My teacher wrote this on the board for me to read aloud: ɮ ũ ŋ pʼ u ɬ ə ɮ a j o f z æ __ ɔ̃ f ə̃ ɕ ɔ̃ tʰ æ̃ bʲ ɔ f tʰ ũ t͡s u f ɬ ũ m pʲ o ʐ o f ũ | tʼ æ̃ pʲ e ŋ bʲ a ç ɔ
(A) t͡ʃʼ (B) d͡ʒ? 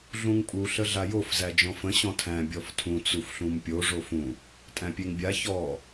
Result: B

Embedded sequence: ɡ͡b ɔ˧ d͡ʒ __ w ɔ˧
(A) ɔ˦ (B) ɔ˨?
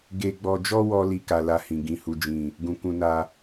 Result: A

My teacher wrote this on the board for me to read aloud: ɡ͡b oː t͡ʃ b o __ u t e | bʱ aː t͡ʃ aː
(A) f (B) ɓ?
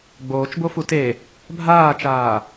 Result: A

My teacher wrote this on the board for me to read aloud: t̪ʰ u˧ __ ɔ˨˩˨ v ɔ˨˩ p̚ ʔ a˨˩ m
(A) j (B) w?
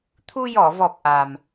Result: A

